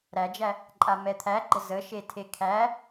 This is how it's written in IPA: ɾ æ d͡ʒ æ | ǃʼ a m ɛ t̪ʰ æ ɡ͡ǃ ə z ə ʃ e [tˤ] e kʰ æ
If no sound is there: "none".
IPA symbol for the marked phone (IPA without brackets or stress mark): tʰ